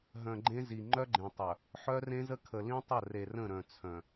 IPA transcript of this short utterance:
ɦ œ̃˨ ɡ͡ǃ ẽ˦ z i˨ ŋ͡ǃ œ˦ ɡ͡ǃ ẽ˨ tˤ œ˨ | ħ œ˦ r ẽ˦ z ə˦ kʰ ə˨ l ĩ˦ tˤ ə˦˨ r e˨ r ə̃˦˨ ɾ œ̃˨ t͡sʰ œ̃˨

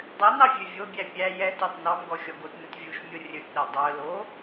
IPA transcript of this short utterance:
dˤ ø n ɑ vʲ ø vʲ o bʲ æ pʲ æ j ɛ t ɑ t n ɑ m ɡ ɔ xʲ ɔ ɡ o t n ɵ t vʲ u ʃ mʲ o rʲ ɵ t ɗ e dˤ œ l o

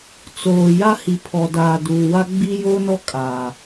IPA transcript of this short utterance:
t͡s oː˨ j a˦ h i˨ pʰ ɔ˨ d aː˨ d uː˨ w a˦ ɡ͡b i˦ j oː˦ n ɔ˦ kʼ aː˨

